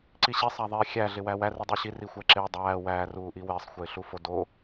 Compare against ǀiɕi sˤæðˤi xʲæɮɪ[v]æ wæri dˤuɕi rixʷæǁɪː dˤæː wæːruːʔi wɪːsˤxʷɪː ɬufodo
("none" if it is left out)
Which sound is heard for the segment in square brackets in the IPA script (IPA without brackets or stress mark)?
w